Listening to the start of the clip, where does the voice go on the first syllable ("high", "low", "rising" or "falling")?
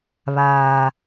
low